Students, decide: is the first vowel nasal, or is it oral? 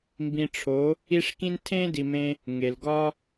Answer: nasal